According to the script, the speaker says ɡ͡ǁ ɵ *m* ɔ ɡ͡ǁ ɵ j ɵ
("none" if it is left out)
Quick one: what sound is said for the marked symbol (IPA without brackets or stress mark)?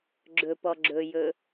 p